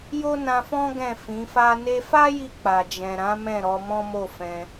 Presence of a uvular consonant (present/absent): absent